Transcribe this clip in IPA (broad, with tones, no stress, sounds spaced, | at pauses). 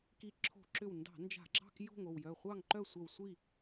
k i˧˩ ǁʰ o̤˧˩˧ ǁ ʏ˧˩ w n d ɑ̤˧˩˧ n d͡ʒ a̤˧˩˧ ɡ͡ǁ ɑ̤˥˨ k j o̤˥˨ ŋ o˧˩ w j œ˧˩ χʷ ɑ˥˨ ŋ ǃ œ˥˨ sʷ œ˧˩ w sʷ i˥˨